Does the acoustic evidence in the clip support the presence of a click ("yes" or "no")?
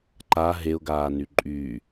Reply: yes